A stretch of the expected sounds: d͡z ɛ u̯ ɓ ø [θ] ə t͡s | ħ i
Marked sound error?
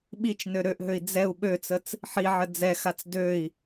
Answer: yes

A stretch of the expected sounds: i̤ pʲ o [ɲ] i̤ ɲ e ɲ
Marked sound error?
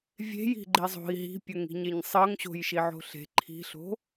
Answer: yes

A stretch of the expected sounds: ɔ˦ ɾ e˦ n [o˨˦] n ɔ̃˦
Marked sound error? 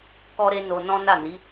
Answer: yes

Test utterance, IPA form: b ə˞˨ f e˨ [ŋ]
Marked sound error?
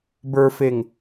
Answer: no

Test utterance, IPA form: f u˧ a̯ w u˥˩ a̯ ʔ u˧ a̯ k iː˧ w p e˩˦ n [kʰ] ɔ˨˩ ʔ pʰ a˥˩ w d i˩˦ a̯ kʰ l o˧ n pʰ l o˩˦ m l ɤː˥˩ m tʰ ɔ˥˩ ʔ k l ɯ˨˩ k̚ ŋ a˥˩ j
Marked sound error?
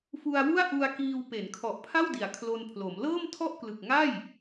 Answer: no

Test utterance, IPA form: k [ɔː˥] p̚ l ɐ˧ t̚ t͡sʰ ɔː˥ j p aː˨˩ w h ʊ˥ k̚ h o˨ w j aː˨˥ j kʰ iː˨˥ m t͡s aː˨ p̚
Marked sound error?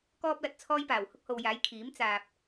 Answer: no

